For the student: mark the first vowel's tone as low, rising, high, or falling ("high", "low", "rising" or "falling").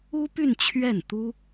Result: high